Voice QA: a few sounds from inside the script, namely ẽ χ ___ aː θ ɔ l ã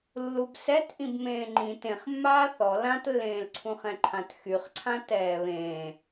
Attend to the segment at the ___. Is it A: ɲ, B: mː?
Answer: B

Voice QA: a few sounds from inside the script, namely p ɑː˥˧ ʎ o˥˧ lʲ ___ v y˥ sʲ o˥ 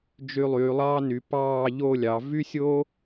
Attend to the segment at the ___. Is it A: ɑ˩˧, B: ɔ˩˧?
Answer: A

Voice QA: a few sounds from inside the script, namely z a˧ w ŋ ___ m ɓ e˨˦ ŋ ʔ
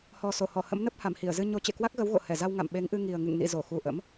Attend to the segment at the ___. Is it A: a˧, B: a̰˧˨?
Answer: B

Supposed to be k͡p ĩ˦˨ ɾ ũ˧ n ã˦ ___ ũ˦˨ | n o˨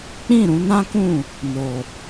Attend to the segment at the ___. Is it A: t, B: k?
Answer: B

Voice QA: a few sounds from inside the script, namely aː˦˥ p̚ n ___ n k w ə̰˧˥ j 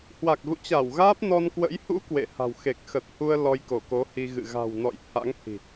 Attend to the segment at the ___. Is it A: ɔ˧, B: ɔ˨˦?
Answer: A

